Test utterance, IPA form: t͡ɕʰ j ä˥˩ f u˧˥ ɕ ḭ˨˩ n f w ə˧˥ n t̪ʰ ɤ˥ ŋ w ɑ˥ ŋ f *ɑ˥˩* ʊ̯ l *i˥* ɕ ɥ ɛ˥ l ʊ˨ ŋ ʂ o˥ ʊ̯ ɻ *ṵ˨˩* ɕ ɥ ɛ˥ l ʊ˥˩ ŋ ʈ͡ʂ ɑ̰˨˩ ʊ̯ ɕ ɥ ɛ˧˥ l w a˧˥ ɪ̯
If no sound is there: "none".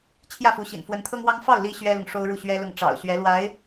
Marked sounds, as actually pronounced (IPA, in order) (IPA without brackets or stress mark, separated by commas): ɑ˥˩, i˥, u˥˩